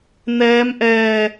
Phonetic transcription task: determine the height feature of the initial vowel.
mid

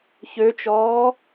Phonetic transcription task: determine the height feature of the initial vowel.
mid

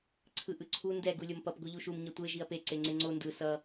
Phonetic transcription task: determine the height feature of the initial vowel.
high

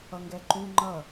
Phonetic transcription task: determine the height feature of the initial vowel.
mid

